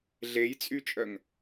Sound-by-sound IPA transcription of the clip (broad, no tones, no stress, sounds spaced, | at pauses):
ɮ e j t͡sʼ y t͡ʃʼ œ ŋ